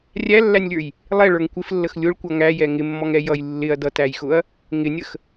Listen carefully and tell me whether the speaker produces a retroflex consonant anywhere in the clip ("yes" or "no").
yes